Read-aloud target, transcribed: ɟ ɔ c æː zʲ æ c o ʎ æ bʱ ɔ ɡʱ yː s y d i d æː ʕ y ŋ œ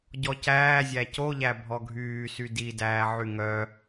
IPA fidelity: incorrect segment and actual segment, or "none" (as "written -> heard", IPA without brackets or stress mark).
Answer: none